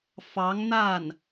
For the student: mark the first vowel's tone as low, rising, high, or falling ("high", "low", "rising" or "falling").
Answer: rising